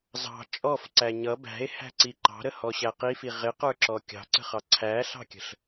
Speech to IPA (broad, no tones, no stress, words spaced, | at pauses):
zɑ̤ t͡ʃʼɔfǀæ ɲʌ bæ̤e̯hæ̤ǀi ǃɑ̤ɾəhɔɕæ qifi ʁɪqə˞ǁɔ kʲɑ̤ǀə̤χɑ ǀʰæɬɑ̤kʲə̤ɬ